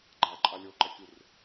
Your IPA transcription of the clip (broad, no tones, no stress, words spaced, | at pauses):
ɡ͡ǃaǃʼa lʲoǃɛkʲur